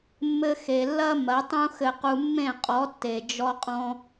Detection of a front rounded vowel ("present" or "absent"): absent